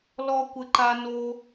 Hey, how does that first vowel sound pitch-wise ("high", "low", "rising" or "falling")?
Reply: high